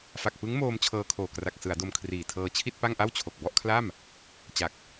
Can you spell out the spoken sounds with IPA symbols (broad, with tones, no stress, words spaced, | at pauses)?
fa˨˩k̚pɯ˦˥ŋmoː˧m t͡ɕʰɤː˧kʰoː˨˩ kra˨˩k̚sɯ˩˦a̯ do˧mkʰriː˨˩tʰɤː˧ t͡ɕʰi˥˩t̚pa˥˩ŋʔa˥˩wt͡ɕʰo˨˩k̚ bɔ˥˩ʔkʰla˥˩m | t͡ɕa˨˩k̚